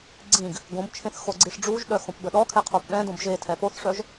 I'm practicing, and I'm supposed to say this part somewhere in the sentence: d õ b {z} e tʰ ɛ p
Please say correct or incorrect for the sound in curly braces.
incorrect